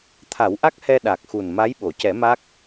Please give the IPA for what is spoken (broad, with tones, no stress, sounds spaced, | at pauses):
t̪ʰ a˨˩˦ w ʔ a˦˥ k̚ h ɛ˧ ɗ a˨˩ k̚ x u˨˩ n m a˧˥ j ɓ o˨˩˨ c ɛ˨˩˦ m a˦˥ k̚